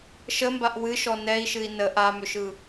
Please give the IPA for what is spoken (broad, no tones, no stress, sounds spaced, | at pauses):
ʃ ə m b a ʔ w ɨ ʃ ɔ n ɛ i̯ ʃ ɨ i̯ n ə ʔ a m ʏ ʃ ɯ